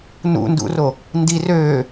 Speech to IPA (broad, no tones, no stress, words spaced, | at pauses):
nṵndṵro | ndi røː